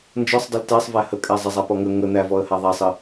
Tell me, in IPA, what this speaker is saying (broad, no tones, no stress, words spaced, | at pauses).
nd͡ʒɔsˤ dˤəltæsˤvæ hə kʼæzˤəzˤa pɔŋə ŋə n̪ævɔə̯ha ðˤæsˤə